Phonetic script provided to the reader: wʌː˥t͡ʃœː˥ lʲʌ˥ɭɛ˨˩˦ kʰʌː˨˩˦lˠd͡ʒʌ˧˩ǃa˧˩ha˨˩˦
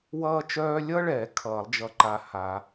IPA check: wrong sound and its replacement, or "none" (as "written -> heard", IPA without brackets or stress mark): none